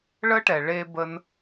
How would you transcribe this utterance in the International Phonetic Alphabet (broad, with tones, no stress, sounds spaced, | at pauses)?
ɭ ə˦ ʈ ɛ˨ ɭ e˧ b ə˧ n